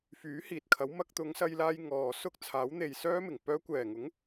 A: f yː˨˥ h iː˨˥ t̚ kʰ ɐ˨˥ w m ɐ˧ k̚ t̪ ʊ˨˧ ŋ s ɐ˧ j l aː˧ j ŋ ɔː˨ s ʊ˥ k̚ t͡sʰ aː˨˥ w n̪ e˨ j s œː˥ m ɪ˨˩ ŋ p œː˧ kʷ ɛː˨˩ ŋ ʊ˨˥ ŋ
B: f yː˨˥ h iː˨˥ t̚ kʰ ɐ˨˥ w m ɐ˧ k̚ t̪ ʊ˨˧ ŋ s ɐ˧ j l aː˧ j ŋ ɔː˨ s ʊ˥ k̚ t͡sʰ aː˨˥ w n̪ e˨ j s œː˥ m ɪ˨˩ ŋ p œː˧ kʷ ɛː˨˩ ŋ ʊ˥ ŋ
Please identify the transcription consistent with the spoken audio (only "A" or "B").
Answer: A